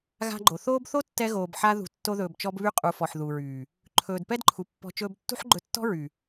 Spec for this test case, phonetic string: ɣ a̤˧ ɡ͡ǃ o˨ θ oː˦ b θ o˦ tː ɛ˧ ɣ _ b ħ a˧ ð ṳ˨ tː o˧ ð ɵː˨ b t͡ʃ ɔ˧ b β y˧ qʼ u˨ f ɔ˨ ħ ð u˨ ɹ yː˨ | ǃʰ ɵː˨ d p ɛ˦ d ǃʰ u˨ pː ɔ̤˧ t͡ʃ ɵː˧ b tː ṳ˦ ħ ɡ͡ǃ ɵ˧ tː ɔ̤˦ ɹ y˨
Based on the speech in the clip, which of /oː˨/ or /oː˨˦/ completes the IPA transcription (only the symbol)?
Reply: oː˨